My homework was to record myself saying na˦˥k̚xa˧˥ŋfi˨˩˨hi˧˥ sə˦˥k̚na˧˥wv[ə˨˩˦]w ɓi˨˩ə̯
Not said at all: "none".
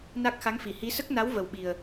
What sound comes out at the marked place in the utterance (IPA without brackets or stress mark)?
ə˨˩